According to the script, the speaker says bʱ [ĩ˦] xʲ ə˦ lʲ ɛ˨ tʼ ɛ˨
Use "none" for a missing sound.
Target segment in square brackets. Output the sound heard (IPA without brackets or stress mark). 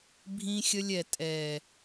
ĩ˦